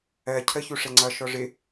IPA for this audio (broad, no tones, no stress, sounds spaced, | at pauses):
ɜ cʰ ə ç u ʂ ɛ ŋ͡ǀ ʌ ʃ ɔ ʐ ɪ